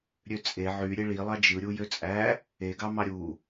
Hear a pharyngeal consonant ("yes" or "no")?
yes